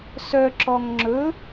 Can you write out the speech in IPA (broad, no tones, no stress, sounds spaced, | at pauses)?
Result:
s œ ǁ ɔ ŋ ŋ͡ǁ ɵ